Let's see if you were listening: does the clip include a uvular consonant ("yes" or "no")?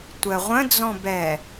yes